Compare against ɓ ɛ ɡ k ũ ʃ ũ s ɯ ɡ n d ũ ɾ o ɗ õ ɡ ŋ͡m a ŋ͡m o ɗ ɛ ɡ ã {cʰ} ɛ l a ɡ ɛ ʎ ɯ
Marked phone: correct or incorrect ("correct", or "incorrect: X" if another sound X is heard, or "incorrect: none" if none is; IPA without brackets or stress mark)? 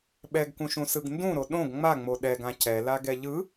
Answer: correct